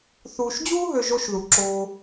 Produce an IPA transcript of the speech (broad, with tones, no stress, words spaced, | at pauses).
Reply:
θuː˧ʃd͡ʑuː˥ɦø˧ ʒo˥ʃðu˧ ǁoː˧